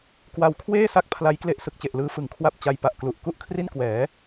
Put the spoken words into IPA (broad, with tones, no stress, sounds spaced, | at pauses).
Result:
k w a˧ w kʰ w eː˥˩ s a˥˩ k̚ pʰ l a˦˥ j k l e˦˥ ʔ s ɯ˨˩ k̚ t͡ɕ e˨˩ ʔ l ɯː˦˥ f ɯ˩˦ ŋ kʰ w a˥˩ p̚ t͡ɕ a˧ j p a˨˩ ʔ k l u˨˩ ʔ k u˥˩ ʔ kʰ r i˥˩ n k w ɛː˩˦